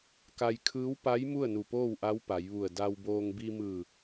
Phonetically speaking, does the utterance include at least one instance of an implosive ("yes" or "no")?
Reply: no